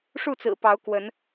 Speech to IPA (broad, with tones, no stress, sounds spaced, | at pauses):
ʂ u˥˨ t͡s ɹ̩˨˩ p ɑ˨˦ ʊ̯ k w ə˨˦ n